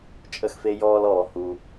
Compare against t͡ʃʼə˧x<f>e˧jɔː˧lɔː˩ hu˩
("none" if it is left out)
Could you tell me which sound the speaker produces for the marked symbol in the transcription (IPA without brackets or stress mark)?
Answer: f